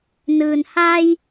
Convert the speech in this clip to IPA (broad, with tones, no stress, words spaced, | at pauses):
nɯː˩nha˧j